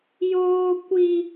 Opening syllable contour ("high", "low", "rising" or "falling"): high